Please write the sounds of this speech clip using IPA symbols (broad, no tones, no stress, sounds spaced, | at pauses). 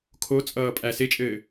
kʰ o t͡sʼ ʌː pʼ æ s e t͡ʃʼ ɘː